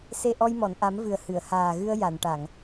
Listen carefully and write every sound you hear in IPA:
s e˧ ʔ ɔ˧ j m ɔ˨˩˨ n ʔ a˨˩˦ m v ɨ˨˩ ə̯ h ɨ˨˩˨ ə̯ h aː˨˩ ɣ ɨ˧ ə̯ j a˨˩˨ n ʈ a˨˩˨ ŋ

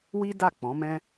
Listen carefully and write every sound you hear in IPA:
w i˦ d a˦˨ k͡p ɔ̃˨˦ m ɛ̃˦

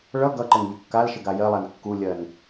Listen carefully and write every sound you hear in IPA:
ɭ ʌ ɡ ʌ ǃ ɘ n ʎ ə kː a l ʃ ɘ ɡ a j ɜ lˠ a n kː u lʲ ɜ n

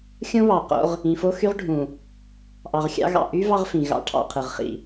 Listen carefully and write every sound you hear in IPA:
xʲ õ˦ β ɑ˨ q o̰˦ ʁ | ĩ˨ f o˦ x y˦ ʁ ɖʱ ũ˨ | ʔ ɑ˨ ʁ xʲ ɑ̰˦ ɣ ɑ̰˨ ʔ y˦ v ɑ˦ ʁ f ĩ˨ ɣ ɑ̰˦ ʈʰ ɑ̰˨ qʰ ɯ˨ ʁ χ ḭ˨

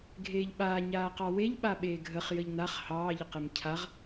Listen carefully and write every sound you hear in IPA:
ɡʱ eː ʎ ɓ aː ɲ aː q ɑ w e ʎ ɓ a ɓ eː ɡʱ ə χ j ə ʎ n a χ h ɑː ʎ ə q e m cʰ a ʁ

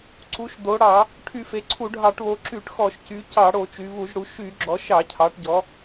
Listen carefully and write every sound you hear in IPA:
ǀ u˩˧ ʃ d o˩˧ ɽ ɑ˧˩˧ | ʈʰ y˧˩˧ f e˩˧ ǀʰ u˧˩˧ ɖʱ ɑ˧˩˧ ʈ β o˩˧ ǁ y˧˩˧ ʈ x ɔ˧˩˧ ʃ c y˩˧ c ɑ˧˩˧ ɽ o˧˩˧ t͡ʃ y˩˧ β u˧˩˧ ʒ ɽ u˩˧ ʃ y˧˩˧ ɡ͡ǁ ɔ˩˧ ʃ ɑ˧˩˧ cʰ ɑ˩˧ ʈ ɟ ɔ˩˧

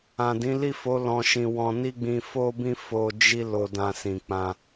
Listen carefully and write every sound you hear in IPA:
ã˨ d ĩ˨˦ l i˦˨ f o˨˦ l ɔ̃˧ ʃ ĩ˧ w ɔ̃˧ n i˦ ɡ͡b ĩ˧ f o˦ b ĩ˦ f o˧ d͡ʒ i˦ l o˧ d ã˧ s ĩ˨ k͡p ã˧

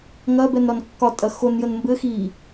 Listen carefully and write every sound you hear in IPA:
ŋ ɐ b ɛ n ɾ ɒ n kː ɒ tʼ ɐ x o n j ə n m b ɘ x i

